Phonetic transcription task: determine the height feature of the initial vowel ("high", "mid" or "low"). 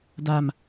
low